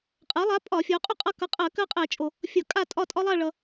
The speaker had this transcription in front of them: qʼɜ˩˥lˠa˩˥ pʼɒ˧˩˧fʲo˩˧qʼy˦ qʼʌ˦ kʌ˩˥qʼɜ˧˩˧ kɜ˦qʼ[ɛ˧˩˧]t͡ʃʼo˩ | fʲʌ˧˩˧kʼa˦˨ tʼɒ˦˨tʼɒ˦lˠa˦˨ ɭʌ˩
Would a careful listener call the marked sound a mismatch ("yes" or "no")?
no